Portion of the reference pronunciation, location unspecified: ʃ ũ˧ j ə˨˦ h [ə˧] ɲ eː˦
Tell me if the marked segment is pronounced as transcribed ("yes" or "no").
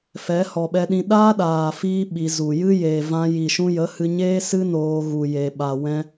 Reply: no